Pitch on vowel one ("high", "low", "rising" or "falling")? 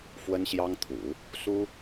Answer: high